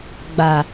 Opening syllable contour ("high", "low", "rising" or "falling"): low